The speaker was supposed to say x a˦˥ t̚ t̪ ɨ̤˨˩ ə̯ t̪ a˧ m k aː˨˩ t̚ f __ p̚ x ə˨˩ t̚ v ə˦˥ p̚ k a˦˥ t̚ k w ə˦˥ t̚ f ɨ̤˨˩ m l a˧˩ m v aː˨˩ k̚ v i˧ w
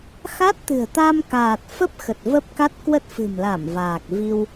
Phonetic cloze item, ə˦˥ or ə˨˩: ə˦˥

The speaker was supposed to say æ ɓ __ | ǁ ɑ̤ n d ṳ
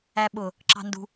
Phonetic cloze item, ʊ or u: ʊ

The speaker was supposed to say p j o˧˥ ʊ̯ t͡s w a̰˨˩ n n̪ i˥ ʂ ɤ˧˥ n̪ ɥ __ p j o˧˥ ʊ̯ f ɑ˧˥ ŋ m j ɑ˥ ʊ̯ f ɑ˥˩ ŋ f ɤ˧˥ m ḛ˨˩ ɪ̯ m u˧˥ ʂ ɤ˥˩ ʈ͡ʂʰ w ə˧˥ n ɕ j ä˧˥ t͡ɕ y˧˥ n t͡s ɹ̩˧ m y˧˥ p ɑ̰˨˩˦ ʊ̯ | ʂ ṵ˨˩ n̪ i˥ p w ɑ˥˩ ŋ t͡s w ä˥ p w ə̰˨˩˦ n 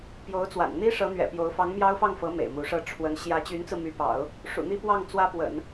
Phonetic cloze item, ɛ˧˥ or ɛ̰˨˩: ɛ̰˨˩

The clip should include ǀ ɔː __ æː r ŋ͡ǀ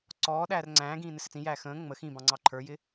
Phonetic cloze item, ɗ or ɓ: ɗ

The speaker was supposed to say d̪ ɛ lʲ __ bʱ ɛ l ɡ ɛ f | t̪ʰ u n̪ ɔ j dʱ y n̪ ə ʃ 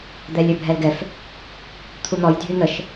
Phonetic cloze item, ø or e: ø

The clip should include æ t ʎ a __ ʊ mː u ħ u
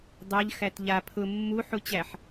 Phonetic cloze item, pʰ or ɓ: pʰ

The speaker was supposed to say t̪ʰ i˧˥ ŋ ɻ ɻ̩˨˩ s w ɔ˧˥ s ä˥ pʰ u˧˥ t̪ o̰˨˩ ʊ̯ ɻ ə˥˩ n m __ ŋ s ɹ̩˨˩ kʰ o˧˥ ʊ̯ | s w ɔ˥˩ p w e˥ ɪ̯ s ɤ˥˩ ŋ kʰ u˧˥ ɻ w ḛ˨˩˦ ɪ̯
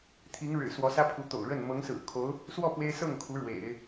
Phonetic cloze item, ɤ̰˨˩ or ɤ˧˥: ɤ˧˥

